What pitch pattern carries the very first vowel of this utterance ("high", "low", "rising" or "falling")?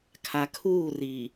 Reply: low